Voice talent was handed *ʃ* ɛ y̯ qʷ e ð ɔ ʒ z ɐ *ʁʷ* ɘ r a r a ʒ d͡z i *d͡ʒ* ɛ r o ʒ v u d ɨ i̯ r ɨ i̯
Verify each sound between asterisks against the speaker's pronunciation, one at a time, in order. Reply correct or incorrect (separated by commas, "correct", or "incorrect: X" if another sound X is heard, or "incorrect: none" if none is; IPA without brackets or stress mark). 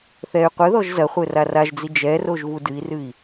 incorrect: θ, incorrect: χʷ, correct